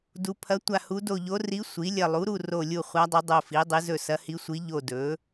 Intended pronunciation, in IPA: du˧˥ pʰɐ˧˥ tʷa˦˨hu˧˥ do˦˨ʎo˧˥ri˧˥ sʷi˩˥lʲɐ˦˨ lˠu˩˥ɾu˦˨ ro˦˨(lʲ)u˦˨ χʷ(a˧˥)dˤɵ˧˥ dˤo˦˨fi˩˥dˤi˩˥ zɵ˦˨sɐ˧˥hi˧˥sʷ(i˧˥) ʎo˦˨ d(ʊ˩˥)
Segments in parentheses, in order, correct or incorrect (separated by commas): correct, correct, correct, incorrect